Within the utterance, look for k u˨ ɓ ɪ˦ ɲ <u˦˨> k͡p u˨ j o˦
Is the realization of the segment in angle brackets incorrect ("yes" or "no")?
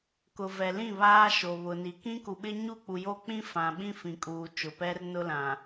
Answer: no